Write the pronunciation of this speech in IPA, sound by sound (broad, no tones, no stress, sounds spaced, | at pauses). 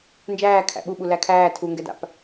n d͡ʒ æː kʰ æ̰ ɓ u ɓ u l æ kʰ æː tʰ u ŋ ɡ ɛ d a̰ p